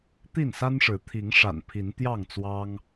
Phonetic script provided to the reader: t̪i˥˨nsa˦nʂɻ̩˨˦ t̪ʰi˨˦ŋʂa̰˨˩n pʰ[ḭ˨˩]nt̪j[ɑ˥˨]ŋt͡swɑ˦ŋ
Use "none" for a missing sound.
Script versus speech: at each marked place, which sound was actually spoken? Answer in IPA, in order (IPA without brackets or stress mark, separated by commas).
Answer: i˨˦, ɑ˥˨